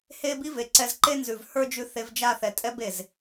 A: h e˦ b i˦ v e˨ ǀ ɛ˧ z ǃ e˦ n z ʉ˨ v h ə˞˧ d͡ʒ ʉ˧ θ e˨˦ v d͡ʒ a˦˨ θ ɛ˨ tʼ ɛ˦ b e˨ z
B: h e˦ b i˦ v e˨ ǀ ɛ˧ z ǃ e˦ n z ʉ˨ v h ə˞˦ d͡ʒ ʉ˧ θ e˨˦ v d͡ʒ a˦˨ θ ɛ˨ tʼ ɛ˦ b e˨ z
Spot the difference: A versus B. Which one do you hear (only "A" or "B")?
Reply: B